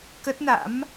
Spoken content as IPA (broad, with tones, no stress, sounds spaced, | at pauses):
k ə˦˥ t̚ n a̰˧˥ m